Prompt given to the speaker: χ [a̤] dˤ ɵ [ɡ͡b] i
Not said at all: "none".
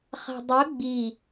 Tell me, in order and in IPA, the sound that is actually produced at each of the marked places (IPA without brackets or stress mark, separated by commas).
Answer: a̤, ɡ͡b